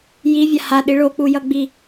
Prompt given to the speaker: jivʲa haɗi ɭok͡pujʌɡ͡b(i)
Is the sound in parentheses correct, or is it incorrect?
correct